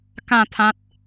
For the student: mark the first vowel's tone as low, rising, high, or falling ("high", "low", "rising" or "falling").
falling